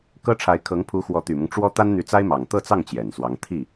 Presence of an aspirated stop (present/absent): present